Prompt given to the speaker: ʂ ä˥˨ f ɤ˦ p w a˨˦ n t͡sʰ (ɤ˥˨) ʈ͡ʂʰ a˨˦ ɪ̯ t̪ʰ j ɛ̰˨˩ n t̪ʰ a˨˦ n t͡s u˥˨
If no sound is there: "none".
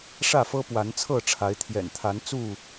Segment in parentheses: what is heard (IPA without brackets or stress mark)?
ɤ˥˨